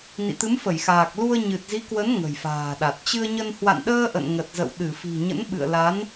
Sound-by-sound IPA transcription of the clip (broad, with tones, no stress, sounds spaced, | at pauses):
n ḭ˧˨ t̪ ɨ˨˦ m f ə˧˩ j x aː˨˩ k̚ l u˧ ə̯ ɲ ɨ˨˩ t̚ z i˨˦ k w ə˨˦ n ŋ ə̤˨˩ j f a̤ː˨˩ ɗ a˨˩ t̚ t͡ɕ ɨ˧ ə̯ ɲ ə˧ n h w a̰˧˨ n ɗ əː˧ ʔ ə̰˧˨ n ŋ ə˨˩ t̚ z ə̰˧˨ w ɗ ɨ˧˩ f i̤˨˩ ɲ ə̰˧˥ n ɓ ɨ̰˧˨ ə̯ l a˨˦ n